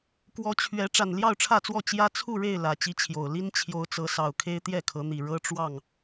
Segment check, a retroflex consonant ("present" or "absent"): present